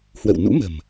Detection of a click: absent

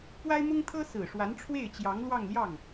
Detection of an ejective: absent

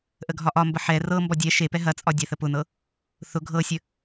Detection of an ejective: present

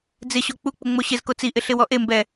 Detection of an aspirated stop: absent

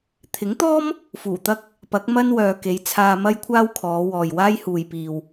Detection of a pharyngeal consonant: absent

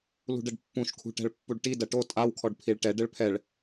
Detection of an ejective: present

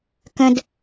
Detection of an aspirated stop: absent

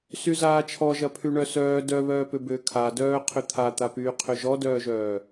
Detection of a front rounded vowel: present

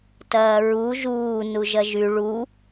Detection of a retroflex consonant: present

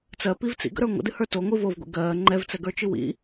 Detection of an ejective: absent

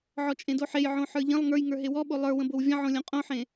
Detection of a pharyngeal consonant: present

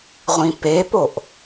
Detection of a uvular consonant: present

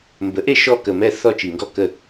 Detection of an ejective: absent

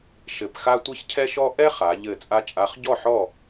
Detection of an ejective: present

